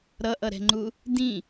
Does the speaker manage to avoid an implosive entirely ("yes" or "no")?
yes